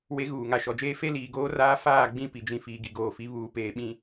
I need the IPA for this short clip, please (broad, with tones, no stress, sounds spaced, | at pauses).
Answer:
w e˦ ɣ uː˨ ŋ a˨ ʃ ɔ˨ d͡ʒ eː˦ f e˦ l iː˨ ɡ oː˦ r aː˦ f aː˦˨ ɡ͡b ĩ˦˨ p i˨ d͡ʒ ĩ˨ f iː˨ ɡ i˨ ɡ oː˨ f i˨˦ β uː˨ p eː˨ ɓ ĩ˨